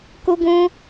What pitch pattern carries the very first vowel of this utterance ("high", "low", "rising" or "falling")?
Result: high